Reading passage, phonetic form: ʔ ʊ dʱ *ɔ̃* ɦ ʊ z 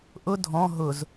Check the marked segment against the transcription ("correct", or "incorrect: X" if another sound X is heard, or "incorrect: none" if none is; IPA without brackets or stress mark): correct